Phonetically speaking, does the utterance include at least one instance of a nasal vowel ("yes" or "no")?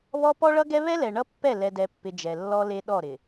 no